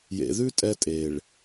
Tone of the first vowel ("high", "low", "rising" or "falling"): low